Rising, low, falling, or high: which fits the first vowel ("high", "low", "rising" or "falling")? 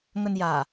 low